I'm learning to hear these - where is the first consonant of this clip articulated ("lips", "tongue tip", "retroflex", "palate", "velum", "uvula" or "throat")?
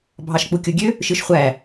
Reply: lips